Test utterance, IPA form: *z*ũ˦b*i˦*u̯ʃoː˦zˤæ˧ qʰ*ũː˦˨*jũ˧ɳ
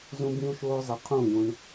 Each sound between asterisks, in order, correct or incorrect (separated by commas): correct, incorrect, correct